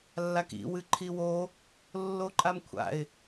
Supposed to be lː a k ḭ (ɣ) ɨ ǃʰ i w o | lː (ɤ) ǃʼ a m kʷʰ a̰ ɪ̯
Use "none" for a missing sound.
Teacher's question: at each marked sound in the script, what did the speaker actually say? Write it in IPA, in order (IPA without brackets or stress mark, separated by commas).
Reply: w, o